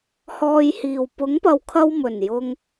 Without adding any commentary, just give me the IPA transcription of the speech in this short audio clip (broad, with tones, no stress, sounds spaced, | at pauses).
h ɔː˧ j h iː˨ w p ʊ˨˥ ŋ p ɐ˨˧ w kʰ ɐ˧ w m ɵ˨˩ n j ʊ˧ ŋ